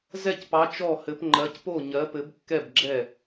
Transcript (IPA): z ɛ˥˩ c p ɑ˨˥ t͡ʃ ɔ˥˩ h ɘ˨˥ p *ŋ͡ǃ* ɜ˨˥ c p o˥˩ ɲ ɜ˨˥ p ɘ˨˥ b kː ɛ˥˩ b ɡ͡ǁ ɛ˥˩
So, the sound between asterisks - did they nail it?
yes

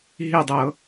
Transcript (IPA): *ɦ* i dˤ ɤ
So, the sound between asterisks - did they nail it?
yes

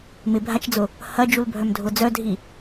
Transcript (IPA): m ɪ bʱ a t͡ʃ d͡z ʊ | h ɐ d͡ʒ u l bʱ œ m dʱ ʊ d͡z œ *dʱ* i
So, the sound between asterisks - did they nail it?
yes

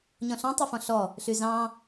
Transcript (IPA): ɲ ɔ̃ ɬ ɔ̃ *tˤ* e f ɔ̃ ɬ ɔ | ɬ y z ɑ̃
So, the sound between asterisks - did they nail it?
yes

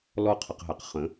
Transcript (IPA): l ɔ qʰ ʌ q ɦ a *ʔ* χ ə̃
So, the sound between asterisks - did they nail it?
no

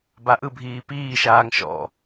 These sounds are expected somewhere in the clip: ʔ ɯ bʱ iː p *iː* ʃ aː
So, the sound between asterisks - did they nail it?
yes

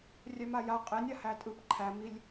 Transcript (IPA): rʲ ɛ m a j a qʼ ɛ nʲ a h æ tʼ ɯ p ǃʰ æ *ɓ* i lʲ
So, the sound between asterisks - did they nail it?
no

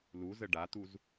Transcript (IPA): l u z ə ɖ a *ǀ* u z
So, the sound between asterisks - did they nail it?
no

